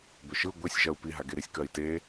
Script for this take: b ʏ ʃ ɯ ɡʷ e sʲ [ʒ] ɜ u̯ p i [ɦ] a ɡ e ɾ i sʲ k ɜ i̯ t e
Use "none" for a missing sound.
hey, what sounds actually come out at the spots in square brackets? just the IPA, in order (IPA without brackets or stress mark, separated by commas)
ʒ, ɦ